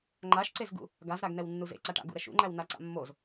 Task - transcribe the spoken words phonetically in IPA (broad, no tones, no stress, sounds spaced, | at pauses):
ŋ͡ǃ a ʃ ǀ e z ɡ ṵ | ɡ a z ɾ a ɡ n ɛ w nː u z ḛ ǀ a ʈ a̰ ɡ ṵ ɾ ɛ ʃ ṵ ŋ͡ǃ æ w n a ǀ a̰ mː o z